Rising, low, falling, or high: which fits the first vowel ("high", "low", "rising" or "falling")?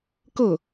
falling